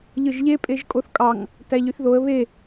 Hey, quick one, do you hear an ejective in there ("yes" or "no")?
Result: yes